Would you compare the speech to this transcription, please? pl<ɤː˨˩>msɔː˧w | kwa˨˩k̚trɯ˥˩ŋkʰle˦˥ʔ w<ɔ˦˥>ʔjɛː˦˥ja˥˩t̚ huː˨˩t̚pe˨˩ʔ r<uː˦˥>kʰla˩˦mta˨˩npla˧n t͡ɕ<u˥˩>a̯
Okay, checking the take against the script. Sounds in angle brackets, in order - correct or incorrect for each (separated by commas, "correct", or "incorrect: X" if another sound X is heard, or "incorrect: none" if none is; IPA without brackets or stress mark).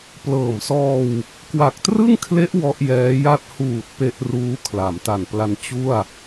correct, correct, correct, correct